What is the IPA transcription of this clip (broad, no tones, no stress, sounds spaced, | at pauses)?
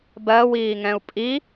b ɜ w iː ŋ ɛ̃ u̯ pʼ i